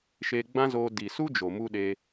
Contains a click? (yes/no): no